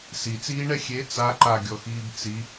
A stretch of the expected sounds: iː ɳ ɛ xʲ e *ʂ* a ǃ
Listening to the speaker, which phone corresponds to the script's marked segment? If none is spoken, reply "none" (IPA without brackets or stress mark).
t͡s